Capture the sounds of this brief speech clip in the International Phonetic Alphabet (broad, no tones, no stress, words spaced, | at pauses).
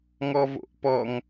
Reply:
ŋɔvo̰ʔpɔŋ